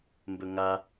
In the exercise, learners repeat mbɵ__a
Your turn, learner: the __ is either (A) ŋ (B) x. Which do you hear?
A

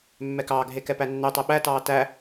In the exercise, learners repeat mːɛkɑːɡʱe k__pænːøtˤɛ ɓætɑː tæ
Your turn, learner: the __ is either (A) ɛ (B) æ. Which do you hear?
A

